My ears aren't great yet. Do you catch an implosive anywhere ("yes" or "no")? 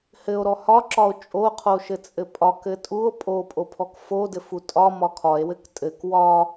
no